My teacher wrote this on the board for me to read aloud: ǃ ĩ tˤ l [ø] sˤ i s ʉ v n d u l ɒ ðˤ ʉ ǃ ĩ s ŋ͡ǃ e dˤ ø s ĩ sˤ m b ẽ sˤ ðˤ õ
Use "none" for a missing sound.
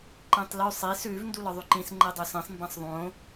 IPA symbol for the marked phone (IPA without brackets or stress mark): ʉ